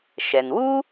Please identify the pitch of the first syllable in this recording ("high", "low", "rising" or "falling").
low